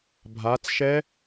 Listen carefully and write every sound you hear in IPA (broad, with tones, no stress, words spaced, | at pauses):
bʱa˨˦t͡sʃɛ˦˥